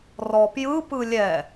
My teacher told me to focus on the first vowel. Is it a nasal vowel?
no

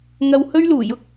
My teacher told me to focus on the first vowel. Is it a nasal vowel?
no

